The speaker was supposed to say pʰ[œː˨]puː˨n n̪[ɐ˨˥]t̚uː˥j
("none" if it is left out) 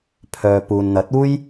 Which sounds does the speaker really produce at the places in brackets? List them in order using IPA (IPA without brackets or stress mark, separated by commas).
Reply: œː˨, ɐ˨˥